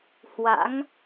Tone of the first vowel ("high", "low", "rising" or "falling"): rising